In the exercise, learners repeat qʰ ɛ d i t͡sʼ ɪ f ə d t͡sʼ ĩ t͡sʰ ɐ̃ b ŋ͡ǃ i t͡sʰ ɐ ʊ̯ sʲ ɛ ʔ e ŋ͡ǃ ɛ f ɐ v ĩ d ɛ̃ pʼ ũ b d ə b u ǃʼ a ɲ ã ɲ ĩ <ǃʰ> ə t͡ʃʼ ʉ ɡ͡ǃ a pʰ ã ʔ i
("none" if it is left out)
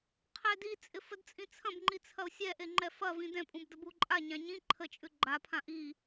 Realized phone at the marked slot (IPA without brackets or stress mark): ǃʰ